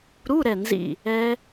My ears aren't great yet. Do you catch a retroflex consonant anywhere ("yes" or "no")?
no